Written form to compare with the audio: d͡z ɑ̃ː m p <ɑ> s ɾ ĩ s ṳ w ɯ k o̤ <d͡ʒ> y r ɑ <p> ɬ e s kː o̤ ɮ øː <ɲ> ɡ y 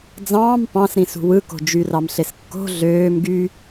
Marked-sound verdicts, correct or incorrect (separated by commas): incorrect, correct, incorrect, incorrect